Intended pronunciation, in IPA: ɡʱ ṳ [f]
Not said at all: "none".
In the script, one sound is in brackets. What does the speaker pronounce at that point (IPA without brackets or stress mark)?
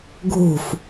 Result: f